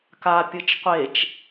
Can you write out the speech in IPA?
ka pʲɯt͡ʃqʷet͡ʃ

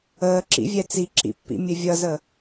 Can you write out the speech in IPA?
əːǁḭvʲɛ t͡siǁḭpːḭ mʲɘvʲʌzə

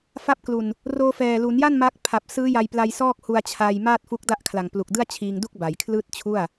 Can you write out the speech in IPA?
fa˦˥p̚klu˨˩n | roː˧fɛː˨˩lu˩˦nja˥˩n ma˦˥k̚ pʰa˨˩p̚sɯː˦˥ ja˧jpla˧j sɔː˥˩k̚hu˧a̯t͡ɕʰa˧jmaː˥˩t̚ fu˦˥k̚da˥˩ʔkʰla˨˩ŋ plu˨˩k̚dɯ˥˩a̯t͡ɕʰiː˧ŋdu˥˩k̚ ba˩˦jkʰlɯː˥˩t̚t͡ɕʰu˥˩a̯

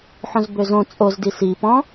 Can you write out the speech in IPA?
ħõzbøzõ t͡sʼozdi si pɔ̃

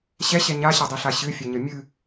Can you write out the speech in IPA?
ɕɛɕɛ ɲaɕadˤiɬa ɕɨfʲɛɲə mʲɨ

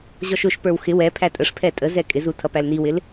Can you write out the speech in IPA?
ʑɔʃʊʃpə˞w xɪ wɛpʰæ tʼəʂpʰɛ tʼəzɛ kʼɪzu tʰʌpælniwɪl

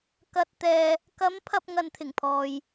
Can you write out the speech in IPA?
kɐ˨t̚t̪ɛː˨ | kɐ˨˥m pʰɐ˧p̚ŋɐ˨nt̪ʰɪ˨˩ŋpʰɔː˨j

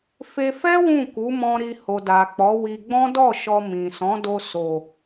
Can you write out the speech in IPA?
fe˧fɛ˦ wũ˦˨ku˨˦mɔ̃˧ ɾi˧ ho˨da˨k͡pɔ˨˦wi˧ ɡ͡bɔ̃˦dɔ˦˨ʃɔ˧ mĩ˨ sɔ̃˨˦do˧ so˨

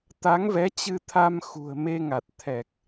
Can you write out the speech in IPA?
t̪a˨˦ŋvɛ˨˦t͡ɕɨ˧t̪ʰa˧m xṳ˨˩ə̯me˧ŋa˨˩t̚ t̪ʰɛ˨˩k̚

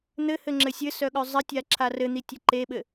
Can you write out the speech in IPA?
n̪ɘhɘŋ͡ǁɘ sʲɘsœɠœ zˤɘtʲaǁʰa rɘn̪itʲɘ ǃeɓɘ

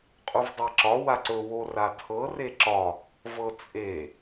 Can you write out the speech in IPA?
qʼuvdˤeǁɒ waǀɵ woratʰɤ reǁɒ | vɤt͡sʼe

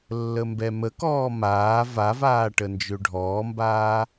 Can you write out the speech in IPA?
lːəmbɛməkɔː maː vavaː ʈənd͡ʒøɖʱɔːmbaː

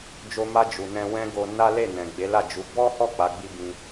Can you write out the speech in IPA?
d͡ʒo˧ma˧ d͡ʒu˨ nɛ̃˧ wɛ̃˦ɡo˧ na˦le˦˨ nɛ̃˨ɡ͡be˨˦la˦˨d͡ʒu˨˦ bɔ˦hɔ˦˨ k͡pa˨˦ɡ͡bi˦bĩ˧

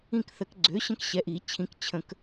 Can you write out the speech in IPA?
ĩ˦˨kθə˨˩˦kɡ͡ǀø˩˥ɕə̃˦k ɕɛ˩˥ʔi˨˩˦t͡ɕʰĩ˩˥k t͡ɕʰə̃˨˩˦k

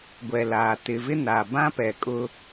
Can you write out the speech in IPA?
ɡʷɛ˨laː˨ tɪ˨vɪ˦na˨ bã˦pɛ˨ kʼʊ˦

